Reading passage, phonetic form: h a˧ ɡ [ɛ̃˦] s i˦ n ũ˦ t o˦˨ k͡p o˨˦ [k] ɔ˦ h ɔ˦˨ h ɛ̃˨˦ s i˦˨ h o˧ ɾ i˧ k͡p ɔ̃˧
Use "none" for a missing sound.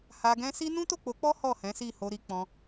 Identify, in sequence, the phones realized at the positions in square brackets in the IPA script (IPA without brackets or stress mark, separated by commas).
ɛ̃˦, k͡p